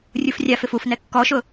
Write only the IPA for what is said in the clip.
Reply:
rʲufrʲafɪf ufnɛ kːɔʃʊ

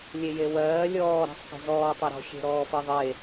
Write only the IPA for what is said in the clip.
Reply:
lʲejewɜː lʲɔː ɾa̤sˤke̤zɔː tˤeɾɔ̤ xʲe̤ɾɔːfɜðˤe

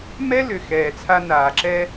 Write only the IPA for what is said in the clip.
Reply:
mɛ˦lʏ˨xɛː˨ t͡sʰa˦naː˨ǁɛ˦

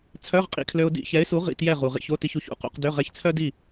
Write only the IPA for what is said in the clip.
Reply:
t͡sʰœ˧˥˧ʁqʼḭ˧kʰlø˧ʊ̯ dḭ˧˥˧çɛ˨˥ɪ̯su˨˥ ʁḭ˧˥˧tjɛ˥˨ʁu˩ʁḭ˥˨ç o˧˥˧ti˧ç u˥˨çṵ˧˥˧qṵ˧qdø˧˥˧ ʁɛ˧çt͡sʰœ˥di˥˨

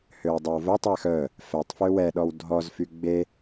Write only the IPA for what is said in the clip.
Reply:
høwdˤœwvœtˤwɛx œ | fɛtˤfø wɛɗɔw dʱɔzfy ɡ͡be

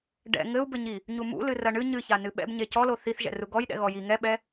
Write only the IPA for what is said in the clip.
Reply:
ɖɛ̰ ŋɘu̯bɘɲi | ɲumṵ lɨrɐɳɨ ɲɨça nɨɓɛ̰bɲe cɔlo θiθʒɛ̰ru ɡɔjɗɛ̰ ɣɔji ŋɛɓɛ

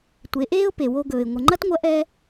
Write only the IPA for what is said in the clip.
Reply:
tʷe˩˧ʔeː˥ʊ̯ pe˩wo˧ɡɵː˩ɪ̯ ŋʷə˩ŋ͡ǃɐ˥tŋʷɐ˧˥ ʔɛ˥

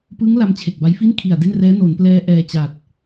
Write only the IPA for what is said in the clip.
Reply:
pɯ˦˥ŋ la˦˥mt͡ɕʰe˨˩k̚ba˦˥j fi˥˩nkʰi˨˩a̯de˥˩nrɛː˦˥ no˩˦nplɛː˧ ʔɛː˧ t͡ɕa˨˩t̚

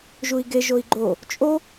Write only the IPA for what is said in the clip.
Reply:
ʒui̯ɡe ʒoi̯ɡ͡ǃo | t͡ʃʼo

